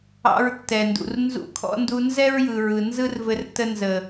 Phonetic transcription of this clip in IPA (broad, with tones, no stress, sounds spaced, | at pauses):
ɑ̰˧ ɹ tː ɛ˨ n d ṵ˨ r n z ṵ˧ kʰ ɔ̰˦ n d u˧ n z ɛ˦ ɹ j ɯ˨ ɹ ɯ˨ n z ɯ˦ r v ɘ˧ r t ə˧ n z ə˨